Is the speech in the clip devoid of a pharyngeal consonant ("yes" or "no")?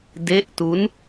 yes